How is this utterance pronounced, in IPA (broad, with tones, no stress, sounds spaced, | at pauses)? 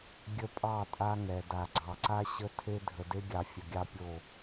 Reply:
ɡʲ ə˦ pʼ ɑ˦˨ tʼ a˦ ŋ ɛ˨ d a˨ ɡ͡ǀ ɑ˨ ǀ a˦ ɕ ə˦ tʰ e˦ dʱ ə˨ d e˦ ɡʲ ɑ˨ fʲ ə˨ ɡʲ ɑ˦ pʲ o˦˨